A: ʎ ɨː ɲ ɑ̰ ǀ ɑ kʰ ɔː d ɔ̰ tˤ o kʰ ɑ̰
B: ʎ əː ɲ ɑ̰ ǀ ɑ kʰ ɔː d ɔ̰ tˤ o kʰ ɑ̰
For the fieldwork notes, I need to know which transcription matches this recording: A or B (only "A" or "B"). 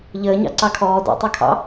B